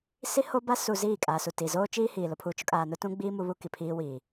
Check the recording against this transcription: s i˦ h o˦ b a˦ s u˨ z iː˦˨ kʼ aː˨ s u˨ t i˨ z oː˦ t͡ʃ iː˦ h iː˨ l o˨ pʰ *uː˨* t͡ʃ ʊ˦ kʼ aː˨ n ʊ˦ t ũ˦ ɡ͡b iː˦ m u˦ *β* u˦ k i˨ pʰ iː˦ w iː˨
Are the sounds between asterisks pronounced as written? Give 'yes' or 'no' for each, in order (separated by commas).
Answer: yes, yes